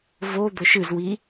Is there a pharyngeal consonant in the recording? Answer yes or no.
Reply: no